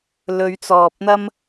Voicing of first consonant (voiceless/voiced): voiced